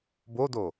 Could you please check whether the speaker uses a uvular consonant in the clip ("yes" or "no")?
no